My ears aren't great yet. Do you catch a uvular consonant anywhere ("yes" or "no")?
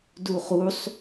yes